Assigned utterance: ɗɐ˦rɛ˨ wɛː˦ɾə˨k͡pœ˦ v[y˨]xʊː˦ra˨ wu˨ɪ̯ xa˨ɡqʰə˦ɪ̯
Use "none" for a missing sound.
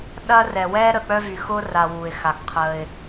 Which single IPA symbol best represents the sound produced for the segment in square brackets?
y˨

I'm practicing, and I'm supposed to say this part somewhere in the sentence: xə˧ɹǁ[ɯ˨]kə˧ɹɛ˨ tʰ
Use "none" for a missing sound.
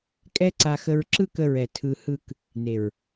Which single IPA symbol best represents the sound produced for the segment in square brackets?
ɯ˦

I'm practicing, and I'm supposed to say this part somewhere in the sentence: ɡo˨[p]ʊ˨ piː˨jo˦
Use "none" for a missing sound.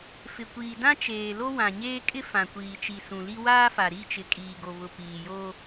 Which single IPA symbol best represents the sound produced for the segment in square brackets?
β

